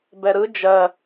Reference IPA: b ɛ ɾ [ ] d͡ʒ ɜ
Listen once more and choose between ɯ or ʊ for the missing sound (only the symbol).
ɯ